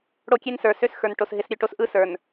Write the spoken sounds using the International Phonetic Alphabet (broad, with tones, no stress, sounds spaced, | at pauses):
ɽ o˦ kʲ e˦ n s ə˞˨ s ø˦ s x ə˞˨ n ʈ o˨ s ɦ ɪ˨˦ s ɾʲ ø˨ ʈ o˦ s ʔ ɯ˦ s ə˞˨ n